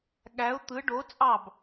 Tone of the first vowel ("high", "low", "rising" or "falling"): rising